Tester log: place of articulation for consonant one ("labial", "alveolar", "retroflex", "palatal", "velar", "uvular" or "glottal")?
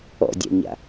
alveolar